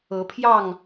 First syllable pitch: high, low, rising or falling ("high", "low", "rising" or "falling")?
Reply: rising